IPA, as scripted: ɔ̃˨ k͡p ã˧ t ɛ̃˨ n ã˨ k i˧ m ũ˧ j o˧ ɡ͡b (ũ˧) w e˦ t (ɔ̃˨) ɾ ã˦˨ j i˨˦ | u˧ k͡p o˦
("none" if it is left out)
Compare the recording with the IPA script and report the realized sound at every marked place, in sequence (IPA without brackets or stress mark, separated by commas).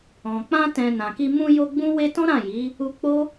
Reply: ũ˦, ɔ̃˦